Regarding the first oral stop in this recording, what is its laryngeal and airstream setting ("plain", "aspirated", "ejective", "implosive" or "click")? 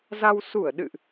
implosive